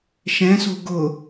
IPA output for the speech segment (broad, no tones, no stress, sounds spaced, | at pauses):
ʃ ɛ̃ s o̤ ɡ ʊ